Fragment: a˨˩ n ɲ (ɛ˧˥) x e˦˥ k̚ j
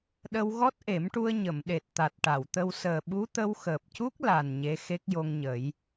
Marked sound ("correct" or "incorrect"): incorrect